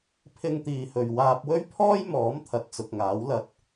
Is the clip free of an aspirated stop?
no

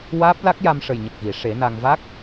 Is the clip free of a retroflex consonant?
no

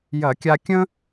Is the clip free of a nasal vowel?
no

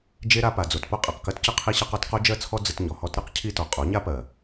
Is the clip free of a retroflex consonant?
yes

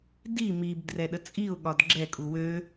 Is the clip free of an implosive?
no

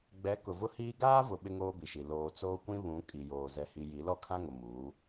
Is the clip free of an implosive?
no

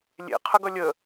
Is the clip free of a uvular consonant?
no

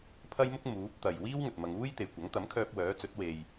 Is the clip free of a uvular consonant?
yes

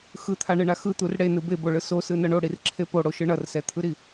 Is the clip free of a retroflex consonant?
no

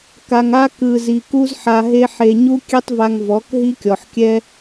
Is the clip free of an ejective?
yes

